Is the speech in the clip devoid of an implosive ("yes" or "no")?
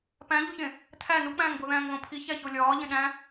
no